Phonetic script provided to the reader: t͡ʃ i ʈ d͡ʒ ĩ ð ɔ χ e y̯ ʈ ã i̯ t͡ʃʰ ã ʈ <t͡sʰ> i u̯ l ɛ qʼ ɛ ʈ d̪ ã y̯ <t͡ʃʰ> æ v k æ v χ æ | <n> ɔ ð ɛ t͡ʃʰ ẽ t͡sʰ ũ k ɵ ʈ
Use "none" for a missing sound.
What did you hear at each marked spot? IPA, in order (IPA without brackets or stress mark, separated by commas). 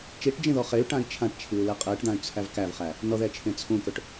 t͡ʃʰ, t͡sʰ, n